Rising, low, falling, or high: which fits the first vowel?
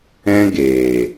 high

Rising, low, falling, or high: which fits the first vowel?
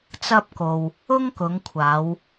high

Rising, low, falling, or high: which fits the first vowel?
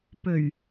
low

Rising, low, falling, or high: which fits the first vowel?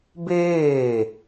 falling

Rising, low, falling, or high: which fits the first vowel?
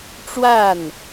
falling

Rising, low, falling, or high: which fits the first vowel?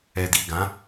low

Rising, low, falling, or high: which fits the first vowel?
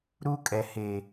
high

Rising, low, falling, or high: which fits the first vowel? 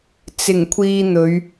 low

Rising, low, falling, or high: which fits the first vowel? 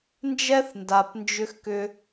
high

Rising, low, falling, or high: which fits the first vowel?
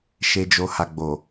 low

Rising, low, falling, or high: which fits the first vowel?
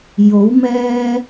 rising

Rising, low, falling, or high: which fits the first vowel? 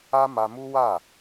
high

